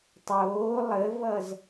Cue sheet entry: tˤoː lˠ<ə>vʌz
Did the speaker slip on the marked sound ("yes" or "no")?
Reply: no